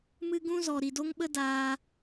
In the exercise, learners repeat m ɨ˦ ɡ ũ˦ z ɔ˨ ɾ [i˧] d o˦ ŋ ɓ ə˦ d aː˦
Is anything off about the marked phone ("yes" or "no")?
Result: yes